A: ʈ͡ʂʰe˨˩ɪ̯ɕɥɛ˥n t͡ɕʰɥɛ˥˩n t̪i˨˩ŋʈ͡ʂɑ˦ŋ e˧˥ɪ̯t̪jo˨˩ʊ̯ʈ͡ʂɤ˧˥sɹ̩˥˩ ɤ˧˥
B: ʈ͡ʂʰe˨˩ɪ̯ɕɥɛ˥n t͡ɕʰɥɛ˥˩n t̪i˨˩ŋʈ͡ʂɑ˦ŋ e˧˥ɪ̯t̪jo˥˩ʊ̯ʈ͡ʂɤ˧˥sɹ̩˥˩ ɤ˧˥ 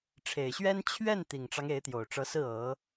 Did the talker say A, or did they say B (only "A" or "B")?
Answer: A